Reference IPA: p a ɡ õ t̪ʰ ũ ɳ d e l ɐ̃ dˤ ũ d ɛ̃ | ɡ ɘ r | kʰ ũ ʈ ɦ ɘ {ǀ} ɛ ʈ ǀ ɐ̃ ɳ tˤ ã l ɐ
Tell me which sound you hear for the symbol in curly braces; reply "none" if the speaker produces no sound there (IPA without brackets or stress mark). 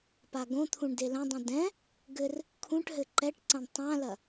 ǃ